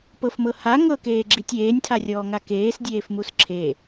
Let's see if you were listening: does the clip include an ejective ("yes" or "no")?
no